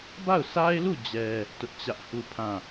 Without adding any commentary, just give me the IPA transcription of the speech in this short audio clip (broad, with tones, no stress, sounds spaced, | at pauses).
b a˦˨ ʊ̯ s a˦ ɪ̯ l u˦˨ d͡ʑ ɛ˦ | t ʊ˦ ʔ t͡ɕ ä˦ ʔ h u˦˨ pʰ ã˦˨